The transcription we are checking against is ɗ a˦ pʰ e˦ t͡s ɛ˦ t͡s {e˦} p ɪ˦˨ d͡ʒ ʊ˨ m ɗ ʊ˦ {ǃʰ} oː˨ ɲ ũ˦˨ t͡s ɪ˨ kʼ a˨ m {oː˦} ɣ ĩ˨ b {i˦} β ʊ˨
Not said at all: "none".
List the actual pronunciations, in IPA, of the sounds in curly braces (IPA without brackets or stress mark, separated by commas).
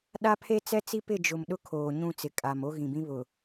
i˦, kʰ, o˦, ĩ˦